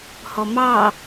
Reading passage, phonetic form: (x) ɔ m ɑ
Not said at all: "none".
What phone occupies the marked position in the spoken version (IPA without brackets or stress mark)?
h